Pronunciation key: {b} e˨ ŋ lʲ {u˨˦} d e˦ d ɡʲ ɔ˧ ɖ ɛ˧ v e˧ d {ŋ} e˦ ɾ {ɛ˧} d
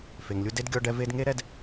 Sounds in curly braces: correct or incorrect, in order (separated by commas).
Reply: incorrect, incorrect, correct, correct